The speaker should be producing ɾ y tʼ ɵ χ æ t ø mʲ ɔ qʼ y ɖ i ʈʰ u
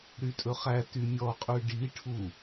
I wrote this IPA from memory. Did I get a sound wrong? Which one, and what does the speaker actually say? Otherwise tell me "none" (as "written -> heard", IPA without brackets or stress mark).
ø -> y